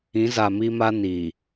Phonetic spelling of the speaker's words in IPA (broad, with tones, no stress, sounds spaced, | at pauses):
ĩ˨˦ z a˨ m i˦ m a˦ n i˨